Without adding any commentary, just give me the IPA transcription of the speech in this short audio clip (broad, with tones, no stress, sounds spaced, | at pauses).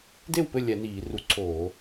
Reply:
d e˥˩ w p ɘ˥˩ lʲ ɛ˧˩˧ n iː˧˩˧ r u˧˩˧ ǀʰ oː˧˩˧